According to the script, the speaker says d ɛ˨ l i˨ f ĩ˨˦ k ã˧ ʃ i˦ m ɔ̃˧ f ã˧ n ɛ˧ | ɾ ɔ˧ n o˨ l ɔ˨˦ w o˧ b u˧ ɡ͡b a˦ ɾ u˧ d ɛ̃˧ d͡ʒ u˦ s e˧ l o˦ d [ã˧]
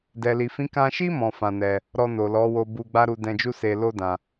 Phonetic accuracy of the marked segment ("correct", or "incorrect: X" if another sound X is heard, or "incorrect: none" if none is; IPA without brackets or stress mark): correct